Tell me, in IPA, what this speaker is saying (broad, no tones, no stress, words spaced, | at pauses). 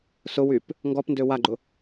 sʊwyp | ŋɡɔp ndøwaɡ͡ǃʊ